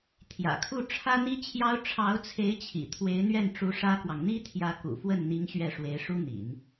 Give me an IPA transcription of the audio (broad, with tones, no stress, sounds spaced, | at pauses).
t̪ʰ j ä̰˨˩ kʰ u˥˩ ʈ͡ʂʰ ä˥ n̪ i˥ t͡ɕʰ j ɑ˥ ʊ̯ ʈ͡ʂʰ ɑ˧˥ ʊ̯ t͡sʰ e˧˥ ɪ̯ t͡ɕʰ ḭ˨˩ t̪ʰ w e˧˥ ɪ̯ n̪ ɥ ɛ˥˩ n ʈ͡ʂ u˧˥ ʂ ä˥ k w ɑ˨ ŋ n̪ i˥ t̪ʰ j ä˧˥ k ṵ˨˩ f w ə˥˩ n n̪ i˧˥ ŋ ɕ ɥ ɛ˥˩ ʂ w e˧˥ ɪ̯ ʂ u˥ n̪ ḭ˨˩˦ n